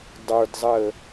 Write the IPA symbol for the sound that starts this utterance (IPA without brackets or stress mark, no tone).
dˤ